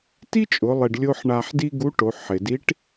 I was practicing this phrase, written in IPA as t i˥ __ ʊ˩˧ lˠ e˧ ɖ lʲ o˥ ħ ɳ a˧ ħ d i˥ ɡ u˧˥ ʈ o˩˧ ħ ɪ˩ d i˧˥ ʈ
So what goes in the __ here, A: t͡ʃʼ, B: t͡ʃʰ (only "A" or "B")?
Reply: A